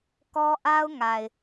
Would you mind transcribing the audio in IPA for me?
k ɔ˦ ʔ a˦ ʊ̯ ŋ a˨ ɪ̯

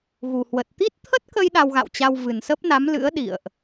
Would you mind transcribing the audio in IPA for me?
ɣ u˨˩ h w ə˨˩ t̚ t̪ i˦˥ t̚ t̪ʰ ə˦˥ t̚ k ə˧ j ɗ a˧ w ɣ a̰˧˨ w t͡ɕ a˧ w v ɨ˨˩ n s ə˦˥ p̚ n a˨˦ m l ɨ̰˧˥ ə̯ ɗ ḭ˧˨ ə̯ ʔ

